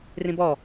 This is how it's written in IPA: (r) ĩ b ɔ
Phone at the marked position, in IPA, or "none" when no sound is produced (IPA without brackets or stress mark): r